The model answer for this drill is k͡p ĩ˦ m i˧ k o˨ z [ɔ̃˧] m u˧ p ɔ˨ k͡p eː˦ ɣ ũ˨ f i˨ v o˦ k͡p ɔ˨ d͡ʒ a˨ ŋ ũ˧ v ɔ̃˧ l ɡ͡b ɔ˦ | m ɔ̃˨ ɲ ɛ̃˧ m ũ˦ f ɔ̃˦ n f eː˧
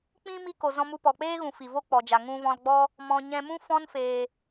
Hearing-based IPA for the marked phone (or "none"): ɔ̃˧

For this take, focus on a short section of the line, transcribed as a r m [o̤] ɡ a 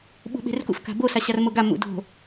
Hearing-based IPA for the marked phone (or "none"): o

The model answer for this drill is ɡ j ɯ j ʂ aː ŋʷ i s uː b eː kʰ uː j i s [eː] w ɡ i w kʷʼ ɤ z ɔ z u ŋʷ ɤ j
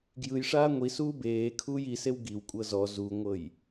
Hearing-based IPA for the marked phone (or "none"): e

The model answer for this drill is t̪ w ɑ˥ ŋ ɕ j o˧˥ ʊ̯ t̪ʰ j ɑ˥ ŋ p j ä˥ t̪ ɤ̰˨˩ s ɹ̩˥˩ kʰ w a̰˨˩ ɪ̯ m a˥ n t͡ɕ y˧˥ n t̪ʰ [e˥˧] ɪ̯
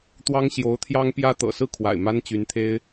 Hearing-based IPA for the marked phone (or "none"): e˥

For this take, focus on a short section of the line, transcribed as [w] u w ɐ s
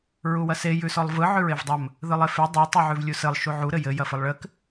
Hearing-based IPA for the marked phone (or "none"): ɹ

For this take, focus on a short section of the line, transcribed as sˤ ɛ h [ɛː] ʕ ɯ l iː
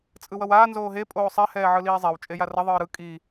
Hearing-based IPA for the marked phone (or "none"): ɛː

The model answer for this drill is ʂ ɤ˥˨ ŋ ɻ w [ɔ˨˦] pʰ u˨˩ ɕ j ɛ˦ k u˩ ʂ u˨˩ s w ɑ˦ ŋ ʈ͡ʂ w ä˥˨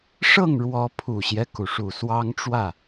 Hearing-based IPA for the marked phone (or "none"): ɔ˨˦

